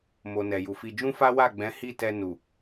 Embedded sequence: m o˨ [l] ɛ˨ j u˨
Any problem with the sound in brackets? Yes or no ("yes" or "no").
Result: yes